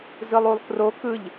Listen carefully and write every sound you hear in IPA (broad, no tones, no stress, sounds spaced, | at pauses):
z ɯ lˠ u lˠ k r o k ɯ ʎ